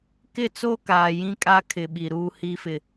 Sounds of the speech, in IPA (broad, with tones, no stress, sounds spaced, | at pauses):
k ɪ˦˨ t͡s o˦ k aː˨ j ĩ˦ kʼ a˦ kʰ ɪ˨ ɓ i˨ ɾ uː˨ h i˨ f ɪ˨